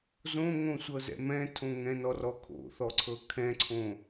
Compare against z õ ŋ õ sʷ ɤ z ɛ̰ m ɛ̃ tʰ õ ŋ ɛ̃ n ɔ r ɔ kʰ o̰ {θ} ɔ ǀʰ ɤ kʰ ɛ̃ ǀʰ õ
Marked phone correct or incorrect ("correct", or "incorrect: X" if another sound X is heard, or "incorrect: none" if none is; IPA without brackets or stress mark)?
correct